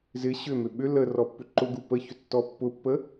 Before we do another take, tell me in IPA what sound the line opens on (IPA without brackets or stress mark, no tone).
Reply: z